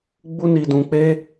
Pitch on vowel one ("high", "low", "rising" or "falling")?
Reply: high